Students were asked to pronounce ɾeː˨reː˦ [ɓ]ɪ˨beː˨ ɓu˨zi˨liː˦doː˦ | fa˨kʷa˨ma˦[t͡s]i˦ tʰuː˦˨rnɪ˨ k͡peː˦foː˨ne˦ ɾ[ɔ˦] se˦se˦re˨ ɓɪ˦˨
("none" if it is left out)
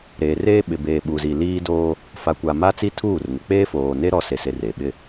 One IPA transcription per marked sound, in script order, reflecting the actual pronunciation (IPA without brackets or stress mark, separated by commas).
ɓ, t͡s, ɔ˦